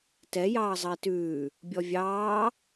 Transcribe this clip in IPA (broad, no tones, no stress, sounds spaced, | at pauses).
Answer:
t ɛ j ɑː zˤ ɐ i̯ t ʉː | bʲ ɔ vʲ ɑː